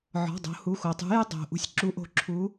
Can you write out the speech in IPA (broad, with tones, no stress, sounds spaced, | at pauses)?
ʕ ɔ̤˩˧˩ dˤ o̤˩˧ h u˩˧˩ x o˩ tˤ ṳ˨˥ j ɨ˦ dˤ o̤˩ ʔ ṳ˨˥ sʲ ǁ u˨˥ ʔ o̤˨˥ ǁʰ u˨˥